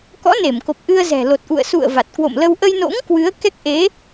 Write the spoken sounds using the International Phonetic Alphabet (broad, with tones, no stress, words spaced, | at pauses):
kɔ̰˧˥ne˧˩mko˨˩p̚ ʔɨ˧ə̯ zɛ̤˨˩lo˨˩t̚ʔṵ˧˨ə̯ sṵ˧˨ə̯ va˨˩t̚kwo̰˧˨mlə˧w ʔə˧jno̰˧˥ŋ kwɨ˨˦ə̯kɛ˦˥k̚ ʔe˨˦